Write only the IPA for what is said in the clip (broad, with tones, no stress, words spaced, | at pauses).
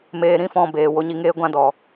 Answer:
meː˧ɾĩ˦fɔ̃˧ beː˨wo˧ɲi˧ŋeː˦ ɡʷã˦dɔ˨